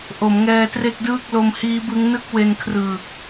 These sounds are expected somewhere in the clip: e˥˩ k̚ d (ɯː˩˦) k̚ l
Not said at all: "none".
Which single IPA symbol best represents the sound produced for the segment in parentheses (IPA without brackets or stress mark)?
ɯː˥˩